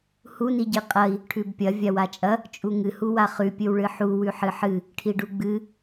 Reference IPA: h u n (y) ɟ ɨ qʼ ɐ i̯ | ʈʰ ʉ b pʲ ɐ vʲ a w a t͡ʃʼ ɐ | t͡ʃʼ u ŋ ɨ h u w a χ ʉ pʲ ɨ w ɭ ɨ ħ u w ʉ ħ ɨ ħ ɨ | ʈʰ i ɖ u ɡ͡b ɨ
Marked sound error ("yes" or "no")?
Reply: yes